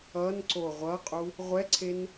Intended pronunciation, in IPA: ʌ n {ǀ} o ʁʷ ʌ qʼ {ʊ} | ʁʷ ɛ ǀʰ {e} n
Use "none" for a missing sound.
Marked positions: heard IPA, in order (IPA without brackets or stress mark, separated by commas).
ǀ, u, e